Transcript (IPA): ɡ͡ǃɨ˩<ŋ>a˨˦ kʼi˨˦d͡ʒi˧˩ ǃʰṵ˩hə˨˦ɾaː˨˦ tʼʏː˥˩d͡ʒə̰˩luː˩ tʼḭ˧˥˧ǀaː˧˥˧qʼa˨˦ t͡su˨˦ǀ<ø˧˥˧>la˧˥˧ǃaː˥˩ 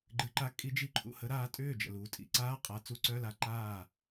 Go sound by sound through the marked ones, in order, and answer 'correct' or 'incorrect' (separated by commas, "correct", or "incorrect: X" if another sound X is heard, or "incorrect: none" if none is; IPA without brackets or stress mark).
incorrect: ǃ, incorrect: œ˧˥˧